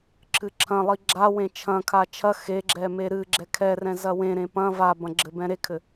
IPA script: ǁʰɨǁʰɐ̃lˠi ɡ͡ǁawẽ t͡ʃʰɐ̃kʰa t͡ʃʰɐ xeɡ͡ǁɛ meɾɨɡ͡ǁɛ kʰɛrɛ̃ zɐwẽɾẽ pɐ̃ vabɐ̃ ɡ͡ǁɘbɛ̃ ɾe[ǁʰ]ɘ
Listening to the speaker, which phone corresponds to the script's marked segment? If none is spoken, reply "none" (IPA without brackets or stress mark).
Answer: kʰ